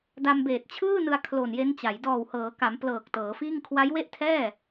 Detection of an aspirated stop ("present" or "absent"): present